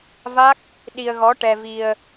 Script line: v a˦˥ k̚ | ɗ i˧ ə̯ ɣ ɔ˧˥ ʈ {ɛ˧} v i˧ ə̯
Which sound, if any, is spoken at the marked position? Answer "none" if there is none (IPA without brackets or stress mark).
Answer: ɛ˧